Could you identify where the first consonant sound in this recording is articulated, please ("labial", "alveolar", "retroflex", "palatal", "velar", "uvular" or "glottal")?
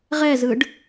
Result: uvular